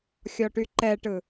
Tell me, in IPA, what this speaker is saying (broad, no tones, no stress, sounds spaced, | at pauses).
xʲ ɔ ʈ y ǃ ɛ ʈ ɯ